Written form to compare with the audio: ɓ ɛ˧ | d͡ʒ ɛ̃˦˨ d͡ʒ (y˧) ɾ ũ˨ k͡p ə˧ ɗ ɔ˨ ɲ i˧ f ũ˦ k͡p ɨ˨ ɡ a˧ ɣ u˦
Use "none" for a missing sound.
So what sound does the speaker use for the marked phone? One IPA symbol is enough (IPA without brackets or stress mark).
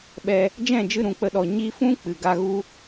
ɨ˧